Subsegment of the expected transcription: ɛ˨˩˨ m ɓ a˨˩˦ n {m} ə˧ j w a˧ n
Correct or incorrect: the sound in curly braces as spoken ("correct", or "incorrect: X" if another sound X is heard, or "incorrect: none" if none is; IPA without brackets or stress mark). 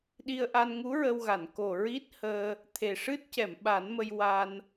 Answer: correct